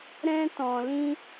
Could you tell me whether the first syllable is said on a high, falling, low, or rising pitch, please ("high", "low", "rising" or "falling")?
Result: high